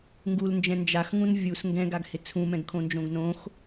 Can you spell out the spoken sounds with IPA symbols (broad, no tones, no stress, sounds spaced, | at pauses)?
ŋ ɡ u l n d͡ʒ ɛ̃ n d͡ʒ a x ŋ ũ n vʲ u s ŋ ɡ ɛ̃ ɡ a ɡ h ɪ t͡sʰ ũ m ɛ̃ ɡ kʰ õ n d͡ʒ õ ɡ n õ x